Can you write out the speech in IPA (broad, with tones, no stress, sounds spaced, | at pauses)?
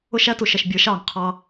ʊ˦ ʃ æ˦ t u˩ ʃ ʌ˥˨ ʃ bʲ ə˞˩˥ ʃ ɑ˩ ŋ qʰ ɑ˦